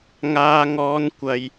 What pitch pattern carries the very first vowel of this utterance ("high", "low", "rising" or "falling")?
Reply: high